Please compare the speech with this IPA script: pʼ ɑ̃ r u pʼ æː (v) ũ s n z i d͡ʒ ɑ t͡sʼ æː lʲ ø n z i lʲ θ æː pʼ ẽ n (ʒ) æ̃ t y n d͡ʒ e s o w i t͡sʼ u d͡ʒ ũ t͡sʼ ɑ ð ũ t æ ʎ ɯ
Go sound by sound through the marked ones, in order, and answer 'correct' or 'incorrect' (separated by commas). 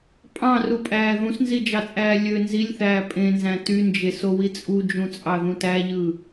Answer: incorrect, incorrect